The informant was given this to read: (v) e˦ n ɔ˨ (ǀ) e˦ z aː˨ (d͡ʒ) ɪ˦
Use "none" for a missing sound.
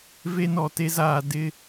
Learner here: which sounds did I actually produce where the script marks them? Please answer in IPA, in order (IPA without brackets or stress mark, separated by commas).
v, t, d